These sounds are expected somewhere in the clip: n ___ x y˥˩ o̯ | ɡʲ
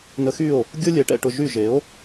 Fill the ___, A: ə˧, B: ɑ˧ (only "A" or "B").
A